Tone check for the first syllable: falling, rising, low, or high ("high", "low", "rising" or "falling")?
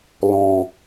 low